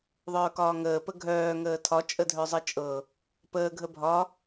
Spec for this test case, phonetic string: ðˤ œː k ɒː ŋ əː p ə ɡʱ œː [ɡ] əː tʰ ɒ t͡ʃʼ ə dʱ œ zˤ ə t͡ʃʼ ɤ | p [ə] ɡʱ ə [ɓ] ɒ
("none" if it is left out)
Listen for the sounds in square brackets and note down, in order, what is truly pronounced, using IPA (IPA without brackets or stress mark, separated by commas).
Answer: ŋ, əː, bʱ